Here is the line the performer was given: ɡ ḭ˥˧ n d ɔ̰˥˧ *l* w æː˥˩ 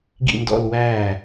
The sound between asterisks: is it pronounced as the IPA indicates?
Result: yes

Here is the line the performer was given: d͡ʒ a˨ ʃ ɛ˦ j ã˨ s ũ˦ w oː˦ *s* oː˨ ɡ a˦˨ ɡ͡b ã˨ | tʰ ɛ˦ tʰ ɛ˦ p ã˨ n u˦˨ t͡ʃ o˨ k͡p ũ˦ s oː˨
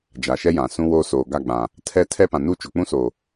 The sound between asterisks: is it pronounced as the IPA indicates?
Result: yes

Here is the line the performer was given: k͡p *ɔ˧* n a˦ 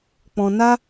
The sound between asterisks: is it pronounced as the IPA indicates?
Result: no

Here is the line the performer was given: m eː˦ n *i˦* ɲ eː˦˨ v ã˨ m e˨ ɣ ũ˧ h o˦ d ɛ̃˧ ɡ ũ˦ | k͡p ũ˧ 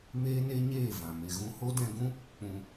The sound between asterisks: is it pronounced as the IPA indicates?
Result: no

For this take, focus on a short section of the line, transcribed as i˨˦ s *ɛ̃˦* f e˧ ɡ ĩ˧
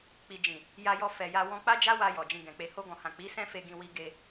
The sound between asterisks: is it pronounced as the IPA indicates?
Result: yes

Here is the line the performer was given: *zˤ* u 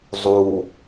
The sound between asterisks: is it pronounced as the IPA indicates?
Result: yes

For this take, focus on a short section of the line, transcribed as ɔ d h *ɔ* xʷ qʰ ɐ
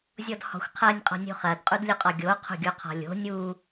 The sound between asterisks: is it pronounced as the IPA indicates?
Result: no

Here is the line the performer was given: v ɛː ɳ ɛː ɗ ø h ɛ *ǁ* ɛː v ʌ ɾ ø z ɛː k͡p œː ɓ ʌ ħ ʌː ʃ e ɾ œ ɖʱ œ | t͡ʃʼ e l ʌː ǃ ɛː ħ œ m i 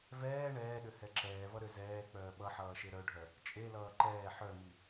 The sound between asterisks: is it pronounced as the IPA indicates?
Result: yes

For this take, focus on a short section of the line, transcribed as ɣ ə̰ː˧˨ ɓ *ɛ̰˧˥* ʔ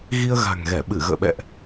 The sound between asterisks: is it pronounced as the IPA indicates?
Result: no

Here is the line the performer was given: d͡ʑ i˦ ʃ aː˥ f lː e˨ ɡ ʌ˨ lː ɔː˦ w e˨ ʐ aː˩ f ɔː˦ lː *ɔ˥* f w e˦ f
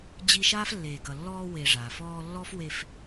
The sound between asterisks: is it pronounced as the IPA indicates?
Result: yes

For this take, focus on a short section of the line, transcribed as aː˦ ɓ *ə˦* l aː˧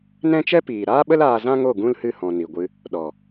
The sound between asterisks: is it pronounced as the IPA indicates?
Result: yes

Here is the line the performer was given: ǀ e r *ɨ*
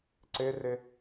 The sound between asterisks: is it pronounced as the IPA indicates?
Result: no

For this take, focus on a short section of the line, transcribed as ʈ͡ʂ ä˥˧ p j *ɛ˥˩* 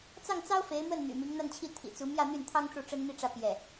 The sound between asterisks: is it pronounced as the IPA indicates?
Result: yes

